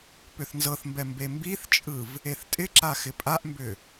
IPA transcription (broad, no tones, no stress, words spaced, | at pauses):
pʏθnzɤθmbɛ mbembiθt͡ʃʼɯv | eθtʼɪǁa xɪpʼaʔmbʏ